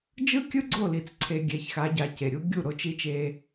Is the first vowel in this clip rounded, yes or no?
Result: no